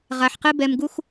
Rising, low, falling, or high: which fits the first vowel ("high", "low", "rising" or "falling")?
low